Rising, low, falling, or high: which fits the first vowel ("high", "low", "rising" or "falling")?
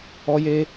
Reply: high